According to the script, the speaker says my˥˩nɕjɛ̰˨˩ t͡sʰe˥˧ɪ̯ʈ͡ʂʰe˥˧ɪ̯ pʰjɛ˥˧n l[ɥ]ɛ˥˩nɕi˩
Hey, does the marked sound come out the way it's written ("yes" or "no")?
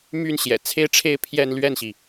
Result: yes